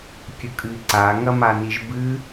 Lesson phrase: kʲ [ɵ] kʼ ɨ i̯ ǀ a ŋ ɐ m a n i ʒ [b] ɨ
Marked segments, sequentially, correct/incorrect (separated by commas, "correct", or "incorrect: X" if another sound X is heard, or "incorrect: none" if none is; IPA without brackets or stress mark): correct, correct